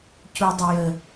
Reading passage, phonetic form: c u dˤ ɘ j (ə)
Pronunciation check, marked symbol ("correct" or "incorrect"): correct